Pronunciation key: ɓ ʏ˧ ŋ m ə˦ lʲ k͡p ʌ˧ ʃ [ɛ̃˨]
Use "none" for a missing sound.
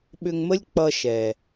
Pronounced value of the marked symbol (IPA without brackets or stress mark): ɛ˨